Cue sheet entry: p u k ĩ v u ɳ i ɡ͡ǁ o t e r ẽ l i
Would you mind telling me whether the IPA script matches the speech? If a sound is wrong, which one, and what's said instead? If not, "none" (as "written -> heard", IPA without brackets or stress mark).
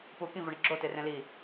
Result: none